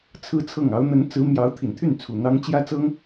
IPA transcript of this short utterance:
t͡sʰɹ̩˥t͡sʰɤ˥˩ŋ ɑ˧˥ʊ̯n̪ə˧˥nt͡sɹ̩˧˥mjɑ˧˥ʊ̯ t̪ʰi˨˩nt̪ʰy˥˩nt͡sʰu˨˩ n̪ɑ˥ŋ t͡ɕjä˥t͡sɤ˥ŋ

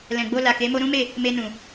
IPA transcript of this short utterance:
lɛ̃˨ɡ͡bo˧ la˨ke˨˦mo˦ ɾũ˦me˦˨ | me˧nũ˨

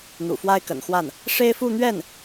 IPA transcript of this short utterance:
n̪ṵ˨˩fwa˥ɪ̯kə̰˨˩nxwa˥˩n | ʂe˥ɪ̯fu˥˧n̪ɥɛ˥˩n

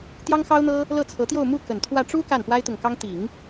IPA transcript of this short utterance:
t̪jɑ˥ŋxɑ˥ʊ̯n̪ɤ˥ | lɤ˥˩t͡sʰɤ˧˥t̪jo˥˧ʊ̯ mu˥˩kə˨˩n t̪ʰwä˥˩ ʈ͡ʂu˥ ka˥˩npwa˥ɪ̯t̪ʊ˨ŋkɑ˥ŋ t̪i˨˩˦ŋ

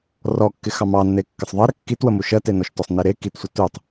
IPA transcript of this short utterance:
rɔkːɪ xɑmɑnːe kːɪsˤðˤɜɾə kːitwəmu ʃɜtenɔʃtɔsˤ niɾe kitsʷə tutˤ

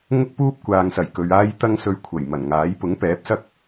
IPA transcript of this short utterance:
ŋʊ˥k̚puː˥p̚ kʷaː˨ŋsɐ˨˩jkɵ˨ɥ aː˧jt̪ɐ˧ŋsɵ˨ɥ kʷʰɐ˨˩j mɐ˨˩nŋaː˨˥j pʊ˨˥ŋpɛː˨˥p̚sɐ˥k̚

